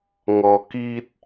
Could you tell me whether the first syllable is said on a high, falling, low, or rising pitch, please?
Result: low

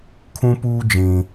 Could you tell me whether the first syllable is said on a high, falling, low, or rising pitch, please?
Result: high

